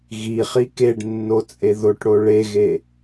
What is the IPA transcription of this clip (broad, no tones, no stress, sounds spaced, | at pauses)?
ɣ i χ i k e ɖ nː o t͡sʼ e ð o ʈ ɽ o ɭ e ɣ e